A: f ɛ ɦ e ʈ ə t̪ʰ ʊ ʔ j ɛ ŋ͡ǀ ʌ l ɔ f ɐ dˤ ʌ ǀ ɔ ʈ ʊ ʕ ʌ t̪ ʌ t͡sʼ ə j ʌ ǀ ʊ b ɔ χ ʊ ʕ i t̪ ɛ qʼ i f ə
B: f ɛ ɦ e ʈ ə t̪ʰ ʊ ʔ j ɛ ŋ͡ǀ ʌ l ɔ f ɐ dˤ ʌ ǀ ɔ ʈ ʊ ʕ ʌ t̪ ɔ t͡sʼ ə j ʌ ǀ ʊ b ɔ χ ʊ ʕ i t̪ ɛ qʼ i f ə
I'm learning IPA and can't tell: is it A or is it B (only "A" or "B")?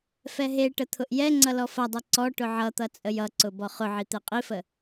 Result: A